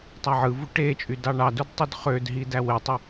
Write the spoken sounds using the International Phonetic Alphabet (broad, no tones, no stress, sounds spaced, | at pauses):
tˤ æ ʕ ɯ v u ʈ e t͡ʃʼ y d ɑ ɳ ɑ d u d tˤ y d χ ø d ɦ i d æ w e tˤ ɯ